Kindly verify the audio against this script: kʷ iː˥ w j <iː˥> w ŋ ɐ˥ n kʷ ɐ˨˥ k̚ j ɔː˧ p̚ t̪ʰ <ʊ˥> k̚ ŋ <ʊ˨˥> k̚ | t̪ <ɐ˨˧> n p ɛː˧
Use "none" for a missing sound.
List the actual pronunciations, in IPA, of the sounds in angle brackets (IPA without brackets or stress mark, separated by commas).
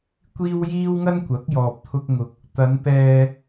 iː˥, ʊ˥, ʊ˧, ɐ˨˧